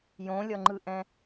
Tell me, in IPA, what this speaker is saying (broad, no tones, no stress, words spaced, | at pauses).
jõlʲʌŋ͡ǃɯʔɛ̃